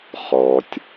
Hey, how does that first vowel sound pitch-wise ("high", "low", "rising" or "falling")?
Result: low